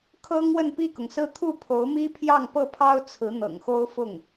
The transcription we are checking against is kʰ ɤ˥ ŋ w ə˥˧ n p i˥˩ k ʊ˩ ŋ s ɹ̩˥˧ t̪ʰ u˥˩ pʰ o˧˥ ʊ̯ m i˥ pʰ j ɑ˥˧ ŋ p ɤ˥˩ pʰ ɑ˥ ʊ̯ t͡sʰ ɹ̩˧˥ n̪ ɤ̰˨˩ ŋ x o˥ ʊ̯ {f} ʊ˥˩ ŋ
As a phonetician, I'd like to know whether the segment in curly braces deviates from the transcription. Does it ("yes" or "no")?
no